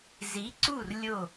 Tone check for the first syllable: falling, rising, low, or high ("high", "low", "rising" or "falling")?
rising